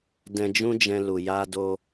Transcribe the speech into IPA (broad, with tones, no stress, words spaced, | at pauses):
dɛ̃˧d͡ʒũ˦d͡ʒɛ̃˧lu˨ ja˧ do˧